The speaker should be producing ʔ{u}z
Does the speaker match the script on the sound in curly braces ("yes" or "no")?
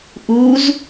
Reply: yes